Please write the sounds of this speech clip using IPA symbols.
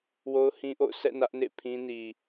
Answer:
w o˦ ʊ̯ h ĩ˦ ʔ o̰˦˨ ʊ̯ s ɛ̰˦˨ n ä˦ ʔ n ḛ˦˨ pʰ ĩ˦ n i˨

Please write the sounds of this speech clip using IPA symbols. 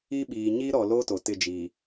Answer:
i˦ ɓ iː˨ ɲ i˦ ɾ ɔ˨ l o˦ t o˨ t ɪ˦˨ d͡ʒ i˨

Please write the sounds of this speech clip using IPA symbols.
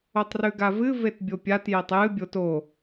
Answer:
o tˤ r ʉ ɡ a v ɨ v e t bʲ o pʲ a t j e tˤ j ɨ bʲ o t o

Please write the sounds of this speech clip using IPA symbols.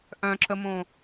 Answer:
ʔ œ̃ ǁ ə m õ

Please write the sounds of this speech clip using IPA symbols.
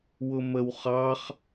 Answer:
w ʊ m ə w χ ɑ χ

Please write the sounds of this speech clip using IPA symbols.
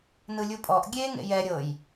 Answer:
n ɯ lʲ u pʼ ɔ ʔ ɡʲ e ŋ ḛ j ɛ ɾʲ ɤ j

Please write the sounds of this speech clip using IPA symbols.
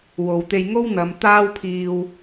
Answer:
w o˨ w t̪ e˧ j ŋ o˥ w n̪ ɐ˨˧ m t̪ aː˥ w pʰ iː˧ w

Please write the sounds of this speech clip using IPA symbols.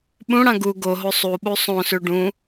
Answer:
ɓ ũ ɽ ã ɡ u ɡ o ɦ o sˤ u ɓ u sˤ õ s ʉ ɖ ũ

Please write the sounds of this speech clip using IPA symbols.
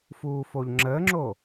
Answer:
f uː f o ʎ ŋ͡ǁ əː ŋ͡ǁ o

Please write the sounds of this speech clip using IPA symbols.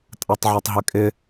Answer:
tʼ a tˤ ʕ a tˤ ɦ ɪ kʼ ɪ

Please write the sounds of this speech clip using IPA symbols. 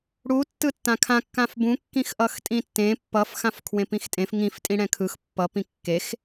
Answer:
ɽ u tː ɯ tː ã kʰ ã kː ã f b ũ kː ĩ x ʔ ʌ x tʼ ĩ tː ẽ pː ʌ f x ã f kʰ w ẽ p ĩ x tʼ ẽ f ŋ ĩ f tʼ ĩ ɽ ɛ̃ kʰ ɯ x pː ʌ p ĩ kː e x

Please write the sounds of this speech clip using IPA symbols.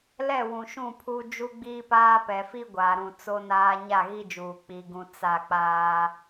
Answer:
l ɛ˦˨ w ũ˨ ʃ ũ˦˨ pʰ u˦ d͡ʒ u˦ ɡ͡b iː˦ p aː˦ p ɛ˨ f i˦ ɡʷ aː˨ ɾ ũ˨ t͡s o˦ n aː˦ ɲ a˦˨ ɣ i˦ d͡ʒ uː˨ k͡p i˨ ɡ ũ˨ t͡s a˦˨ k͡p aː˦

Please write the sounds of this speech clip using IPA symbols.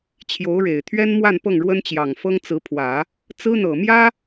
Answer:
t͡ɕʰ j o˧˥ ʊ̯ ɻ e˨˩ ɪ̯ t̪ʰ ɥ ɛ˥ n m w a˥˧ n p ɤ˥˩ ŋ ɻ w ə˥ n t͡ɕ j ɑ˨˩ ŋ f ɤ˥ ŋ t͡s ɹ̩˧˥ pʰ w ä˨˩˦ | t͡s ɹ̩˥ n̪ ɤ˨˩ m j ä˥

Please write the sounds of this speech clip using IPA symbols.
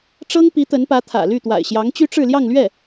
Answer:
ʈ͡ʂ ɤ˥ ŋ p i˧˥ t̪ ə˧˥ n p ä˧˥ t̪ʰ ä̰˨˩ l y˥˩ t̪ w a̰˨˩ ɪ̯ ɕ j ɑ˧˥ ŋ t͡ɕ y˥ ʈ͡ʂ ɻ̩˥˧ l j ɑ˥˧ ŋ l ɥ ɛ˥˩

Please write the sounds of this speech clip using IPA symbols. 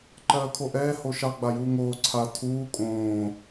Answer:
ǃ ɜː kʰ o ʔ ɛː h o ʃ ɑ ɡ͡b a j uː ŋ oː ǀʰ a tʰ uː kʼ õː

